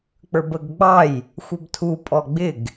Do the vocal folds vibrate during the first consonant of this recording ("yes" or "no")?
no